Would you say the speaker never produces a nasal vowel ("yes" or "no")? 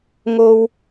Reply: yes